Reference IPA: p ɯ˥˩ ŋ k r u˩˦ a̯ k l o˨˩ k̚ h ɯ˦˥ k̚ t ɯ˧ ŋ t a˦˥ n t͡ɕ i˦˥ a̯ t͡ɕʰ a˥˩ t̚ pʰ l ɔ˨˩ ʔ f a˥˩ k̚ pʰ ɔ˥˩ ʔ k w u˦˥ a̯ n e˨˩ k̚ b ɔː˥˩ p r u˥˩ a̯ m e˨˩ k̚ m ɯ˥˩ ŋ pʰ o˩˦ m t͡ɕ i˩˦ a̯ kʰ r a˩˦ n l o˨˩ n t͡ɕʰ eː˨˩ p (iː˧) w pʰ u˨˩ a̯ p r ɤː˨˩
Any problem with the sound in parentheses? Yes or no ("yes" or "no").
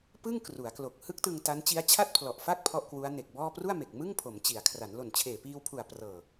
no